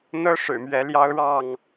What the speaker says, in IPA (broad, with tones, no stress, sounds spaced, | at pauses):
n̪ ɤ˦ ʂ ɻ̩˨˩ m ɥ ɛ˨˦ l j ɑ˦ ʊ̯ ɻ ɑ˥˨ ŋ